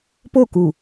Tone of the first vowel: falling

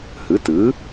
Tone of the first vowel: rising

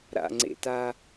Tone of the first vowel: low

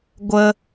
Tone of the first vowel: high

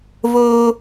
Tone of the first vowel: high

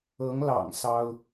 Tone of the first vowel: rising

